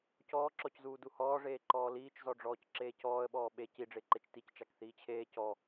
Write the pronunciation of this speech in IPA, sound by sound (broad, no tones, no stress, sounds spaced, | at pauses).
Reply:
c ɔː ǁ ɔ c z uː d u h ɔː ʐ eː ǃ ɔː l iː t͡ʃ z ɔ ɖ͡ʐ ɔː c ǁ eː c ɔː ə̯ ɓ ɔː ɓ e c i ɖ͡ʐ e ǃ e t͡ʃ t i c t͡ʃ a k θ iː t͡ɕʰ eː c ɔ